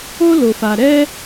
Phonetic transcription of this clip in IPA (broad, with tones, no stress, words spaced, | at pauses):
o˥lo˩fa˩ ɾɛ˥